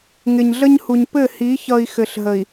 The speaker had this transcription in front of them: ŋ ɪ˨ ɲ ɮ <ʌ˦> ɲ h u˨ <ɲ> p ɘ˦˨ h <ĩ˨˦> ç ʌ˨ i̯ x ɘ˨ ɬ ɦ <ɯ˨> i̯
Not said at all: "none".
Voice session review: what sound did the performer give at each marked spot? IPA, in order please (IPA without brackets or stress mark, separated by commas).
ə˦, ɲ, i˨˦, ə˨